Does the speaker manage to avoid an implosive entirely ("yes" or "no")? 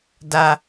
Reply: yes